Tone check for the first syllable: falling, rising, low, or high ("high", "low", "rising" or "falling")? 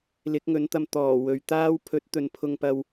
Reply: rising